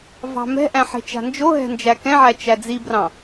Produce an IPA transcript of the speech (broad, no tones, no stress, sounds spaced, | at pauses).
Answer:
v ɑ̤ m ɛ̤ ʔ æ̃ ħ e̤ t͡ʃ a̤ n d͡ʒ o ɦ ɛ̤ n d͡ʒ æ k ɛ̃ ʕ æ t͡ʃ æ d͡z i b r ɑ̃